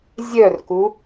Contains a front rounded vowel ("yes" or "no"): yes